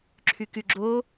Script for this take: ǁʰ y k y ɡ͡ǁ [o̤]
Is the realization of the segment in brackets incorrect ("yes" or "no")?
yes